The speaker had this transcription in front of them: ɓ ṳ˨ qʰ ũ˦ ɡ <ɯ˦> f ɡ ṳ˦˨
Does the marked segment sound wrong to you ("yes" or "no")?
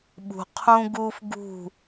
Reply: yes